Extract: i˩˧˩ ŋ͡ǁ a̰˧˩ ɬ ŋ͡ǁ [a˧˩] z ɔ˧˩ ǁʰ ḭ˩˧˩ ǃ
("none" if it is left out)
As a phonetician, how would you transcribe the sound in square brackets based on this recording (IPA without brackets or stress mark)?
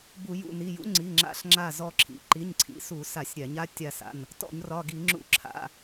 a˧˩